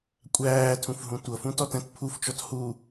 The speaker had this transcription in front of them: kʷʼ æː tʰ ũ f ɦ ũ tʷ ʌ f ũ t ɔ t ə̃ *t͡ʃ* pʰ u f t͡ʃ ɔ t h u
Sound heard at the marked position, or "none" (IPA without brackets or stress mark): t